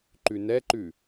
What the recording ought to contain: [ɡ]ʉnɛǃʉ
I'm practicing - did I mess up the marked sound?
yes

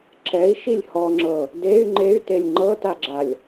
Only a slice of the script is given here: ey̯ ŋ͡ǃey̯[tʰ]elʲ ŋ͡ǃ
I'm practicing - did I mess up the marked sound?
yes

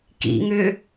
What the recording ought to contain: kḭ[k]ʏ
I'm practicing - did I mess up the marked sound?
yes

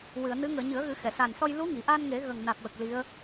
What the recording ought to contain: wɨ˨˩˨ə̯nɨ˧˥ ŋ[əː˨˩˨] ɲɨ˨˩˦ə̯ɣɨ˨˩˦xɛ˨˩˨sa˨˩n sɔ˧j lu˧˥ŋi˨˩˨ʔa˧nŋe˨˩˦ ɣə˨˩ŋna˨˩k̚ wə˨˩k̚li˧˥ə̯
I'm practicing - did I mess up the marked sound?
no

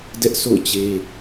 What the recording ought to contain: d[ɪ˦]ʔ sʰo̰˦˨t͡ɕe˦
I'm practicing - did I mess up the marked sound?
yes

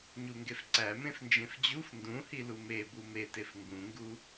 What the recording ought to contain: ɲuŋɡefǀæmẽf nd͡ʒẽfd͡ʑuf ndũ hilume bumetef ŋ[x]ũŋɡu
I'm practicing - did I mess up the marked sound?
yes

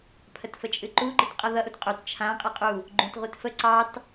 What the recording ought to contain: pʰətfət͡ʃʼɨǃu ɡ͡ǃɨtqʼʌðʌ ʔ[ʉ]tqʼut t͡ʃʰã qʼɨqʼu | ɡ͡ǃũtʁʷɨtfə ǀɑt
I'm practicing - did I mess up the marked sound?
yes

